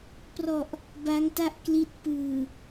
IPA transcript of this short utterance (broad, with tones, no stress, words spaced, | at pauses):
prɔ˨˩ʔ | ba˦˥ŋta˥˩ʔkli˦˥t̚ pɯː˨˩